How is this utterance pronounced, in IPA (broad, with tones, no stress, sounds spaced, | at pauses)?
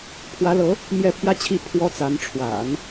pʰ w ä˧˥ l ɤ˧˥ | m j ɛ˥˩ pʰ j ä˥ t͡ɕʰ i˥˩ pʰ w ɔ˥ t͡s a˧˥ n ʈ͡ʂʰ w a̰˨˩˦ n